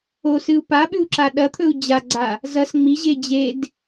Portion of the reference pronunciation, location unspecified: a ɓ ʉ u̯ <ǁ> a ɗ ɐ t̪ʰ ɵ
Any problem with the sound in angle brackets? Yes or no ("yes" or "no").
no